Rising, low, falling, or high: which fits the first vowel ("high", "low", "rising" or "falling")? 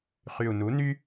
low